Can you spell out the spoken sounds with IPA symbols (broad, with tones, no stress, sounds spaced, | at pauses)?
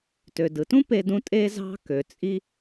t ø˩ d ɯ˩ t ũ˥ p e˧ d ũ˧ tʼ e˧ z ɑ̤˧ k ø˩ t͡sʼ i˥